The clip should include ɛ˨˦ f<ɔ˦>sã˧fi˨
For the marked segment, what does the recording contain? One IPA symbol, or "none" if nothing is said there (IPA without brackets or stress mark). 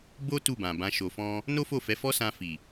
ɔ˦